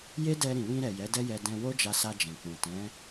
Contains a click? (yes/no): no